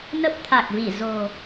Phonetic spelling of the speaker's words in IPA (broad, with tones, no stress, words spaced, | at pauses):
nə˦˥p̚t̪ʰa˨˩k̚vi˧˩ zo̤˨˩